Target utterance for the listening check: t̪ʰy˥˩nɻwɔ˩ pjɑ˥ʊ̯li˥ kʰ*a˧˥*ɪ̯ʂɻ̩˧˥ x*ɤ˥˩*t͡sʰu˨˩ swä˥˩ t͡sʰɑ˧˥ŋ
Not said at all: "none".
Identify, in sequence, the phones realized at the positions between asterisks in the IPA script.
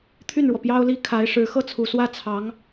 a˧˥, ɤ˥˩

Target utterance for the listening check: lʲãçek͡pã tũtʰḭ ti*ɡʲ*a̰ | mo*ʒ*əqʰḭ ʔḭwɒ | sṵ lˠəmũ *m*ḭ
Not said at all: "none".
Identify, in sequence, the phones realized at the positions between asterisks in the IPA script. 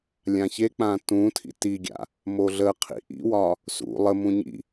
ɡʲ, ɮ, ɲ

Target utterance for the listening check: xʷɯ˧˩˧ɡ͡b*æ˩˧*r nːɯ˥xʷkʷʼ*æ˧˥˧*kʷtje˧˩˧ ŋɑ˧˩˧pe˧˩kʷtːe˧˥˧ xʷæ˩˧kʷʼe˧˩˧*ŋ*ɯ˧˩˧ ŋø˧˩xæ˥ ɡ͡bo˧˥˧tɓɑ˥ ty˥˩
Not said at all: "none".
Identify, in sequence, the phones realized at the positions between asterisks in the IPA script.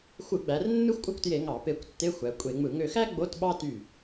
æ˩˧, æ˥, ŋ͡m

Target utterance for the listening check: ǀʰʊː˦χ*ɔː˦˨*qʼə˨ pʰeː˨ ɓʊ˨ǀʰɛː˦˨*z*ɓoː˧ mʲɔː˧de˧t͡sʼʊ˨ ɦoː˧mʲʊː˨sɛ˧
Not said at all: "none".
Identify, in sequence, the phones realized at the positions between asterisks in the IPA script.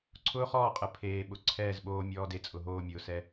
ɔː˦˨, z

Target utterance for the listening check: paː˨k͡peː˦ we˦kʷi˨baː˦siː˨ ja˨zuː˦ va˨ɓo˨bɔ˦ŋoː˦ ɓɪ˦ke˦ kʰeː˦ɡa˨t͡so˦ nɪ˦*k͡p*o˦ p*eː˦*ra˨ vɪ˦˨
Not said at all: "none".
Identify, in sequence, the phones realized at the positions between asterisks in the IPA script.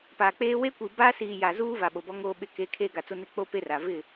k͡p, e˦

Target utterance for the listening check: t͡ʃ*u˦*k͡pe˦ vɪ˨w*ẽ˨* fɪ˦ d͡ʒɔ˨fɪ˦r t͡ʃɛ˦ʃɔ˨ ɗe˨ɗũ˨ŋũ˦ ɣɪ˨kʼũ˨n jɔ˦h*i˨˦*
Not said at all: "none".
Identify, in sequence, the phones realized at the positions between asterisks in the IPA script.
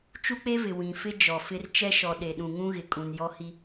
u˦, ĩ˨, i˦

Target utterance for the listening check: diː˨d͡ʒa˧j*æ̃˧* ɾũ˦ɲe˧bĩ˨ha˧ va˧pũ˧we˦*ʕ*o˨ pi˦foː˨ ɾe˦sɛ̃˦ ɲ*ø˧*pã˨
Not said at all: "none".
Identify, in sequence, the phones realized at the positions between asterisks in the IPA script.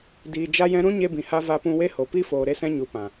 ɛ̃˧, h, u˧

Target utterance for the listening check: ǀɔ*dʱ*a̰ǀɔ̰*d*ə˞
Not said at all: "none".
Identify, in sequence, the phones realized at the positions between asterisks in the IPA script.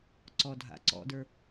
dʱ, d

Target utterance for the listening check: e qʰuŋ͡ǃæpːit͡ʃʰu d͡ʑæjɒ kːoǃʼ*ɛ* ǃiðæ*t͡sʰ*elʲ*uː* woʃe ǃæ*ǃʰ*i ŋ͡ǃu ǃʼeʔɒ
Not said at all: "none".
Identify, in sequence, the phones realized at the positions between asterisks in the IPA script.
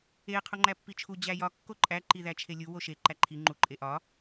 æ, t͡ʃʰ, u, ǃʰ

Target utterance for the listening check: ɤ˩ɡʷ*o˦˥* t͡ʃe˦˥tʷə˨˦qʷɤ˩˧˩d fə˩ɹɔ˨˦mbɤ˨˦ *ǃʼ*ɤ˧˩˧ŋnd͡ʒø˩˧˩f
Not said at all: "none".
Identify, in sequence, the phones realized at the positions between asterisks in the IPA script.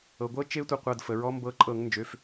ɤ˦˥, ǃʼ

